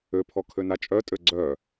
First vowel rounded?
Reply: yes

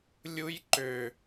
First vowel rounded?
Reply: yes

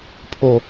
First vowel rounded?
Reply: yes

